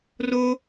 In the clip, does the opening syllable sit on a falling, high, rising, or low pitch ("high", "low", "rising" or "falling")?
high